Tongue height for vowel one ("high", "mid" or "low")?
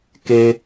mid